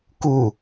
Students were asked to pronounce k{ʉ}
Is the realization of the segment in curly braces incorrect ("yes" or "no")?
yes